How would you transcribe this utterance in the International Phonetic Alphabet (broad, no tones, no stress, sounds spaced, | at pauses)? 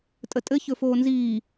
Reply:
tʼ ə tʼ ɘ ç ɵ f oː n z iː